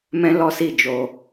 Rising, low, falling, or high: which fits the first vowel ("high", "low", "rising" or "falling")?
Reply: high